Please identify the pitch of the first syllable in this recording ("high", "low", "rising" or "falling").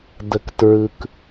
low